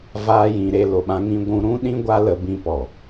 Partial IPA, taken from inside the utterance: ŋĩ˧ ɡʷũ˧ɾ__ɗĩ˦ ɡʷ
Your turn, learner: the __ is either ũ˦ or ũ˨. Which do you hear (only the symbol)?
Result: ũ˦